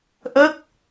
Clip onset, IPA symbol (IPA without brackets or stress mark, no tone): ʔ